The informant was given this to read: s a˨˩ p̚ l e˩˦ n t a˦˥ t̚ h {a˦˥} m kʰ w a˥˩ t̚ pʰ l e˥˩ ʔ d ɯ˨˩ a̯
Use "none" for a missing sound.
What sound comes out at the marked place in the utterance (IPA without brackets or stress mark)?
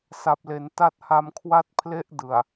a˧